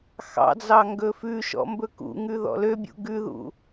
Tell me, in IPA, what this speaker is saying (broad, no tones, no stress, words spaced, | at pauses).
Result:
xɑ̰d͡zɑ ŋɡɵfʉʃɔ̰ mbɵkṵŋʉ ðɔ̰løbʲṵ ɡʉðṵ